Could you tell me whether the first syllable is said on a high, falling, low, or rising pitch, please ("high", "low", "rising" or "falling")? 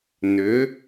rising